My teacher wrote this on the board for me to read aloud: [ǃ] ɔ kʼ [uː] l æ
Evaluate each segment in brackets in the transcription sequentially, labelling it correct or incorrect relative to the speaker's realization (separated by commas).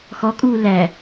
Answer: incorrect, correct